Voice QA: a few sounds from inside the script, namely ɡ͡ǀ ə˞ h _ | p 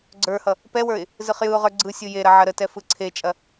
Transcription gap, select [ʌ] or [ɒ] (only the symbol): ʌ